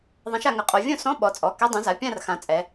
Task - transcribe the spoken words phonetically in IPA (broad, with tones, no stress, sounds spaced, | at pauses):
ðˤ ã˨˥ ʃ a˩˧ ŋ ə˩˧˩ qʼ o˩˧ vʲ õ˥˨ s ɔ̃˧˥˧ ɓ ɔ˩˧ t͡sʼ ɔ˩˧˩ k ɛ˧˥˧ dˤ ũ˨˥ z a˩˧˩ pʲ ã˥˨ r x ã˩˧ t͡sʼ ɛ˩˧